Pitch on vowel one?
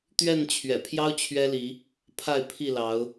falling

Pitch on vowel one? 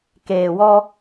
low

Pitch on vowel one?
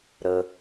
low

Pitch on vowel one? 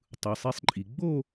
low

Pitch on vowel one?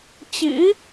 rising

